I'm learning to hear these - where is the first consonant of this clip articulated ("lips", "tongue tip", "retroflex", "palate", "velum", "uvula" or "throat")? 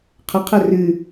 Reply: uvula